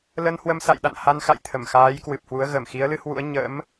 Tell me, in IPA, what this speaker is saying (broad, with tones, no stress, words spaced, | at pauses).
lə˧nhwə˧msa̰˧˨j ɗa̰˧˨nha˧nxa̰˧˨jt̪ʰə˧˩m xaː˨˦j kwɨ˨˩p̚hwu˨˦ə̯ ɣə˧˩mxi˨˦ə̯lɨ˨˦hwṵ˧˥ə̯ ɲə̰˧˥m